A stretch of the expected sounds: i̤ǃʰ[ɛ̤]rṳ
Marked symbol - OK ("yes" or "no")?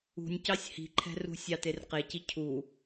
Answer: yes